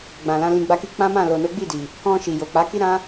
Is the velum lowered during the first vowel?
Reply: yes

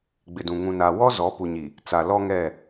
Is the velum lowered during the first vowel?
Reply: no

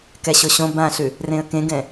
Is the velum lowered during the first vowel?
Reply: no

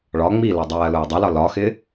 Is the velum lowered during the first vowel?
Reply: no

